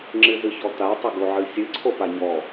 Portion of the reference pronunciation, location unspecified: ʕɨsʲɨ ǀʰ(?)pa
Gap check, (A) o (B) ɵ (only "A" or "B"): A